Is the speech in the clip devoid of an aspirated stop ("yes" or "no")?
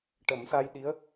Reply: yes